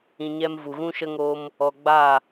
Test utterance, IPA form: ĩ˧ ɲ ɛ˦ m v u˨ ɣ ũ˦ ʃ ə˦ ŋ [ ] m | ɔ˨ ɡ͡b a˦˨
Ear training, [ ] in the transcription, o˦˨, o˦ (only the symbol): o˦